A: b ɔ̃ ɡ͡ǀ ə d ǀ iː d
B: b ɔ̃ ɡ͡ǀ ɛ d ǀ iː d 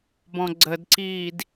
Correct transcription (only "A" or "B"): A